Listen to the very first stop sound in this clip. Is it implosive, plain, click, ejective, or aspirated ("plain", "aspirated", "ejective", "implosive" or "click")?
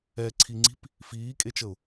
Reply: click